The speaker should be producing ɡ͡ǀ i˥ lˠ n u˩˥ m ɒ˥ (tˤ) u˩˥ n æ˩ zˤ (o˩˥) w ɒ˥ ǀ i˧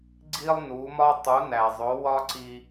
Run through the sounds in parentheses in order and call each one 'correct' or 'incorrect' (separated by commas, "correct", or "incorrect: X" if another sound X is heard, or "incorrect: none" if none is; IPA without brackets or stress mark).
correct, correct